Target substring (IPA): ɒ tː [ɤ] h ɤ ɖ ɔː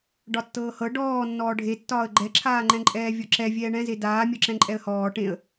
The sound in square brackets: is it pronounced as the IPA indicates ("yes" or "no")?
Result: no